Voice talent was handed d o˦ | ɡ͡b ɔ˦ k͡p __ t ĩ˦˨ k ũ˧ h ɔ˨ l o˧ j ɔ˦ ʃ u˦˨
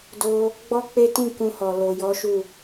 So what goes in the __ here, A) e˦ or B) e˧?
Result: A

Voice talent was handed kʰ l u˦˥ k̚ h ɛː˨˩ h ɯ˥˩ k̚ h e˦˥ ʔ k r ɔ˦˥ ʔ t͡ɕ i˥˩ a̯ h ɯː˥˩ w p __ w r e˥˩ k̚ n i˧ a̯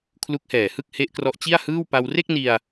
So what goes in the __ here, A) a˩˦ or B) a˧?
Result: B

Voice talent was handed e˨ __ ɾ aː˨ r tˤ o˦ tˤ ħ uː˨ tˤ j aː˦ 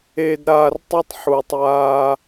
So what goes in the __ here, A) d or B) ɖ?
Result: A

